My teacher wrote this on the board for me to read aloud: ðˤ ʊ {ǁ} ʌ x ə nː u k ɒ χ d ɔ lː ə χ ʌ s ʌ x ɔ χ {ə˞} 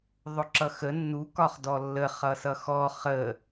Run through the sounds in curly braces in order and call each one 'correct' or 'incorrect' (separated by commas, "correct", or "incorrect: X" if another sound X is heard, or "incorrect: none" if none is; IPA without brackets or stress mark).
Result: correct, incorrect: ə